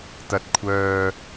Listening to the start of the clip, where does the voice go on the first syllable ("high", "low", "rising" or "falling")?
low